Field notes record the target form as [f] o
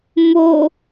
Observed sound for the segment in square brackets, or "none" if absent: m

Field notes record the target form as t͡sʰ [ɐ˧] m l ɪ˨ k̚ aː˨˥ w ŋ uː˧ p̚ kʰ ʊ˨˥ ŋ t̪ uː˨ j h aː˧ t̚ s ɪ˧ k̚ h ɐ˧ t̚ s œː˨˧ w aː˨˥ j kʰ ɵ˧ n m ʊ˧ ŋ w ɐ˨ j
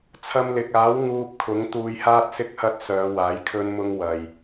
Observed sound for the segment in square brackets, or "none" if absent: ɐ˧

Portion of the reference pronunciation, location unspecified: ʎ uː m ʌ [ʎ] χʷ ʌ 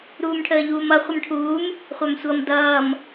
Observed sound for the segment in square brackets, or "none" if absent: none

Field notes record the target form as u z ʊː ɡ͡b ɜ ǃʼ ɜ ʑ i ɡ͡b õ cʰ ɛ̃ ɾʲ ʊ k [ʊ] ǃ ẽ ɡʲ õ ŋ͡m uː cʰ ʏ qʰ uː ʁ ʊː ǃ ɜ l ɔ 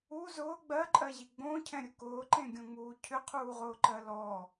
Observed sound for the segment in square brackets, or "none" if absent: ʊː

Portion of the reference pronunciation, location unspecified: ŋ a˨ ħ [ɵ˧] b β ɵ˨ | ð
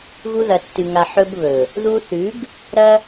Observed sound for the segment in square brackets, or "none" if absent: ɵ˧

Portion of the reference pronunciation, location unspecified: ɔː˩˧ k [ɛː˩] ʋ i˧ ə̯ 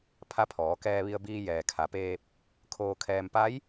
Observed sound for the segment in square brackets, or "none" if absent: ɛː˧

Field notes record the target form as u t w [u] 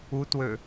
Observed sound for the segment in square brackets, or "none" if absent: ø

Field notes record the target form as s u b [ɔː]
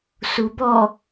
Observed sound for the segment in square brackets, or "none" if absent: ɔ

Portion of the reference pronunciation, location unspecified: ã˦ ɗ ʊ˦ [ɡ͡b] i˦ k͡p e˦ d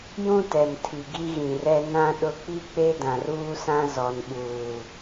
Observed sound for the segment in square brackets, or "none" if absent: k͡p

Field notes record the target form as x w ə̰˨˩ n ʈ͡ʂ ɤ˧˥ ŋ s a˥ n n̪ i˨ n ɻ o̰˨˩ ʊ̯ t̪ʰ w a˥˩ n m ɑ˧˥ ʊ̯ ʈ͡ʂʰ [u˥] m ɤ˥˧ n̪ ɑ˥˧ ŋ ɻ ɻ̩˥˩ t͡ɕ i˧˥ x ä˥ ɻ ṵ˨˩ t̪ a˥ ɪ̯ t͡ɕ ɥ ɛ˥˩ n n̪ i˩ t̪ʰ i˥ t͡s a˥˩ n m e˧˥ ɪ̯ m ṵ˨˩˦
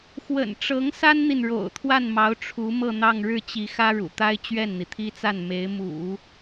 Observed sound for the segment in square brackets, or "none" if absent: u˧˥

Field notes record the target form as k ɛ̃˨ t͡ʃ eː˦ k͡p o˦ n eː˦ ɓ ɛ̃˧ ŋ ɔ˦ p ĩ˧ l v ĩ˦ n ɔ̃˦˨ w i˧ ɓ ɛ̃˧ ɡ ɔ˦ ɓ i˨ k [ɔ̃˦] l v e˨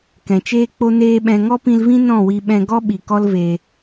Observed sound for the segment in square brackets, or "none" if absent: ɔ˦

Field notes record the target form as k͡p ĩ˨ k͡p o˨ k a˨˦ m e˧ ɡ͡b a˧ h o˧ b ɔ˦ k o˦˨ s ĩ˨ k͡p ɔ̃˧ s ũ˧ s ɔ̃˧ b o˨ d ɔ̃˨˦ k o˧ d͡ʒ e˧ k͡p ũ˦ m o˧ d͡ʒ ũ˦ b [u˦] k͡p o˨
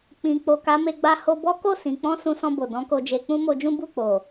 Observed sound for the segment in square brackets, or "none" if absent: u˦˨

